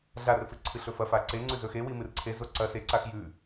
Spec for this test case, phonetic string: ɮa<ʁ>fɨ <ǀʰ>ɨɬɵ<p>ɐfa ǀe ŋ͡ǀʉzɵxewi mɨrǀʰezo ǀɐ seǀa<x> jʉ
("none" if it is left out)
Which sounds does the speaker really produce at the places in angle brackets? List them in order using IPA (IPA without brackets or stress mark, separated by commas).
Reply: r, ǀʰ, f, x